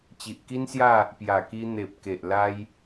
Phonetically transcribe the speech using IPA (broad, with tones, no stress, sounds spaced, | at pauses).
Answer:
t͡ɕ i˨ ʔ k i˦ n s j a˥˧ | p j a˨˩ k i˧ n̪ e˨ p̚ k e˨ ʔ l a˦ j